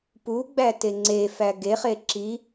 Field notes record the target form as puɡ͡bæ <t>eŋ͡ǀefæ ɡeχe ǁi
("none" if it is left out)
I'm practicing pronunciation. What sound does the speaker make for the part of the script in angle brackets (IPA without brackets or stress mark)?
t